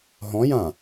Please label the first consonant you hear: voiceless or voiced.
voiced